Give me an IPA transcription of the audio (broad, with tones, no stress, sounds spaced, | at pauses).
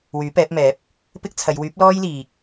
w yː˨˥ p ɛː˨˥ p̚ m ɛː˨˥ p̚ | p ɪ˥ k̚ t͡sʰ ɐ˨˧ j w yː˨˥ p̚ l ɔː˥ j l iː˨ k̚